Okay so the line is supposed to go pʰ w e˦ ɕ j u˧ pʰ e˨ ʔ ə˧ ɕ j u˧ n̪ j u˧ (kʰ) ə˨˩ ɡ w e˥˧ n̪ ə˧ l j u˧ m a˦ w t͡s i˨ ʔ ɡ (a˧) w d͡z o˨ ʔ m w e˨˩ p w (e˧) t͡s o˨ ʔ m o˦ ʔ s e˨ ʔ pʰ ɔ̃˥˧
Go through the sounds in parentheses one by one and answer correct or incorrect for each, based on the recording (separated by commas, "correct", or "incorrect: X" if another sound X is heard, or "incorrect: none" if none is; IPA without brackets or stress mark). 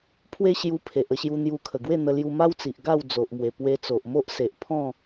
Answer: correct, incorrect: a˥˧, correct